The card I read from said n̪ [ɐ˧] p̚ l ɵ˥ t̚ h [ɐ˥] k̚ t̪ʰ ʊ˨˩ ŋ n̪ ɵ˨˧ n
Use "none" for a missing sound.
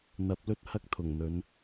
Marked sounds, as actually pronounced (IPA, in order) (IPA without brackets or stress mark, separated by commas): ɐ˨˥, ɐ˥